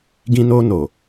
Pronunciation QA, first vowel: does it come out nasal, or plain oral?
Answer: nasal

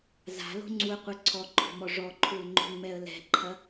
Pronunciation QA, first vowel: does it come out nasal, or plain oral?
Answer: oral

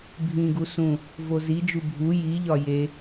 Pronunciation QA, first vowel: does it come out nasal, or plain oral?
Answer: nasal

